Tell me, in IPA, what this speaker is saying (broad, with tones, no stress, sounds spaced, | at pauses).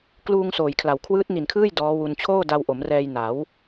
k l uː˧ ŋ s oː˨˩ j kʰ l a˩˦ w kʰ w ɯː˦˥ t̚ n i˨˩ n kʰ ɯː˥˩ j d ɔː˦˥ w u˧ n t͡ɕʰ oː˥˩ d a˧ w ʔ o˩˦ m r ɛː˧ j n a˩˦ w